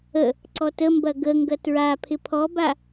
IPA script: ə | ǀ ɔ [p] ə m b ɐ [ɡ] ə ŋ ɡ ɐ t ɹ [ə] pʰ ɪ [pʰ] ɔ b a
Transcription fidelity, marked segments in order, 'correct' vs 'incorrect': incorrect, correct, incorrect, correct

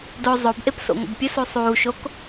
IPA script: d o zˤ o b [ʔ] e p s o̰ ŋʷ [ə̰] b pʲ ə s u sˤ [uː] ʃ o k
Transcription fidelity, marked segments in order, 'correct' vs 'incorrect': correct, correct, correct

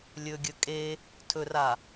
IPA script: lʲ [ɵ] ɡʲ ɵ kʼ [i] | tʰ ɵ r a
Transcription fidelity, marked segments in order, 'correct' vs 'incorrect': correct, incorrect

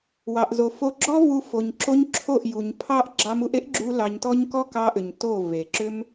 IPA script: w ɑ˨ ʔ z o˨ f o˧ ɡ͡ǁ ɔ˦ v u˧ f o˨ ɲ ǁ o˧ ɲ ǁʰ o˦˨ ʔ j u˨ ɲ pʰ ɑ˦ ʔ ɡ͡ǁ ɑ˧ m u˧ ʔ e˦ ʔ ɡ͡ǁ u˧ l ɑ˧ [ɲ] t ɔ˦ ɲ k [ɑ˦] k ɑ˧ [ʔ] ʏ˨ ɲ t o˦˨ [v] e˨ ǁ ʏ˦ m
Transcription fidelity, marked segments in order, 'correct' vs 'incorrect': correct, incorrect, correct, correct

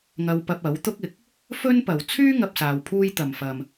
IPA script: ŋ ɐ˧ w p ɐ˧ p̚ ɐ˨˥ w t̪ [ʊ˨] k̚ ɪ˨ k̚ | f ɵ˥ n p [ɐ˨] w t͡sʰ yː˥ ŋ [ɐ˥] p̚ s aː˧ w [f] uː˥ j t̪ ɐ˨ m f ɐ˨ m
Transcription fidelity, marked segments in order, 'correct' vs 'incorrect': incorrect, correct, incorrect, incorrect

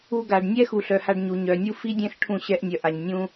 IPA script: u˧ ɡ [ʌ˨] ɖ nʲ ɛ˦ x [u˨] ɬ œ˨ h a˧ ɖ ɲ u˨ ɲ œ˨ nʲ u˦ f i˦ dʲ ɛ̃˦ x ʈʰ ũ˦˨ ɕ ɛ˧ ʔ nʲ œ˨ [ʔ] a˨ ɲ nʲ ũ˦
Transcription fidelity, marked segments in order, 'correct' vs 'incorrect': incorrect, correct, correct

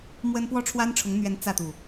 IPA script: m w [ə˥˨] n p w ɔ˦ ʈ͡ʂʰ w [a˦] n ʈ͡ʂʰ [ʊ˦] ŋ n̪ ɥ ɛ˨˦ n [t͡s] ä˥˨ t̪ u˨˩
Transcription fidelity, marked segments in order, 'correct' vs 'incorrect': incorrect, correct, incorrect, correct

